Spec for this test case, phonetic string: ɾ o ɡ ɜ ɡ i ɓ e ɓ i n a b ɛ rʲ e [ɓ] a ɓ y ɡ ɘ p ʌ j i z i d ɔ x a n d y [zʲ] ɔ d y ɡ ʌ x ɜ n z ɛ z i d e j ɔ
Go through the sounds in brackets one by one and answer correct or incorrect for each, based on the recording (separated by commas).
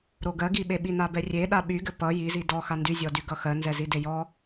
incorrect, correct